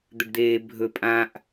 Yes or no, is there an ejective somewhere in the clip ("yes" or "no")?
yes